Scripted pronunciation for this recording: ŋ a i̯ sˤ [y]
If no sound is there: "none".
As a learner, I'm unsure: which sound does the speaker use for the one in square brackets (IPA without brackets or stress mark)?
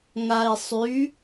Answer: y